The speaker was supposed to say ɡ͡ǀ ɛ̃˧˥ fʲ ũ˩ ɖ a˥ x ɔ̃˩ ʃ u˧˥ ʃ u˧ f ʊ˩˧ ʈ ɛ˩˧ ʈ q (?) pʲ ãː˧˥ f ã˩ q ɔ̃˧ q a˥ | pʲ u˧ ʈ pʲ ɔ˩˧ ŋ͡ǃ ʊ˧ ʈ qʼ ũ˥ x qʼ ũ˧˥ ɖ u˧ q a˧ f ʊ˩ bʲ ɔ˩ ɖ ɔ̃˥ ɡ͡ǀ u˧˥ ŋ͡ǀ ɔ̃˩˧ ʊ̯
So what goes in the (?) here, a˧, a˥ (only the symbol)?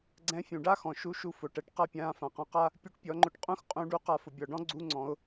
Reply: a˥